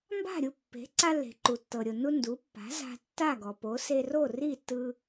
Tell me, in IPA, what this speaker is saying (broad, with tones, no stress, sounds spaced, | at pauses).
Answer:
m b a̤˥˩ ɾʲ u˥˩ pː e̤˩˥ ǀ a˧ lː e̤˩ ǃ u˩ tː ɤ˩ ɾʲ o˩ n u˧ n d u˩˥ pː a̤˩˥ z a̤˧ tː a˥˩ ɡ ɔ˩ p o˩˥ s e˧ r o˥˩ r i˥˩ tː ɯ˧